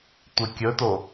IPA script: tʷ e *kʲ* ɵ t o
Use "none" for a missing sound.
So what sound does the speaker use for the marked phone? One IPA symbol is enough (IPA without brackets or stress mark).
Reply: kʲ